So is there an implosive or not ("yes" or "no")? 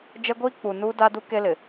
no